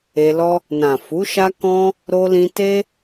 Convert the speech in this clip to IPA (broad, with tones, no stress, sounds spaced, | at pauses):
e˧ l ɔ˦ | n ã˨ f u˨˦ ʃ a˦ k ɔ̃˦ | ɾ o˧ l ĩ˧ t e˦